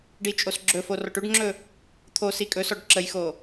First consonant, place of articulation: retroflex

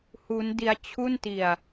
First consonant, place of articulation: glottal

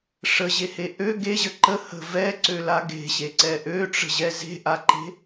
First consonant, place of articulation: retroflex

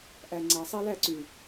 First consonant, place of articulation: glottal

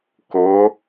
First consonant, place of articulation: velar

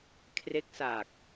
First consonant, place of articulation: velar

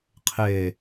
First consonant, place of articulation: uvular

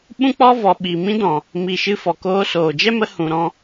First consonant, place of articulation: labial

